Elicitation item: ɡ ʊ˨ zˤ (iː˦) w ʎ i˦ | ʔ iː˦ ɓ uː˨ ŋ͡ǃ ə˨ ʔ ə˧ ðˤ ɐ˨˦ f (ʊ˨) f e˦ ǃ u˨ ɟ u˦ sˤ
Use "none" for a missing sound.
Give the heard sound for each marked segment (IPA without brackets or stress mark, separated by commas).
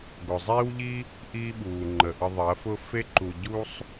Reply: iː˦, ʊ˦